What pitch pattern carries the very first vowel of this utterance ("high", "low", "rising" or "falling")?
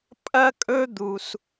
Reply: high